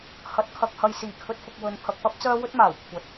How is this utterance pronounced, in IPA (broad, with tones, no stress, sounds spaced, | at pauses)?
h ɐ˨˥ t̚ kʰ ɐ˨ k̚ h ɐ˧ j s iː˨˩ kʰ ɵ˧ t̚ f ʊ˨ k̚ w ɵ˨ n pʰ ɐ˨ k̚ p ɐ˥ p̚ t͡s œː˥ w ɵ˥ t̚ m aː˨˩ w kʷʰ ɐ˨˥ t̚